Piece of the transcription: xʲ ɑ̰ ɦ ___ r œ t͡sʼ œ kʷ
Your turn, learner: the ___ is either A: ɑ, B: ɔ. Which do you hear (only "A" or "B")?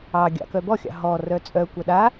B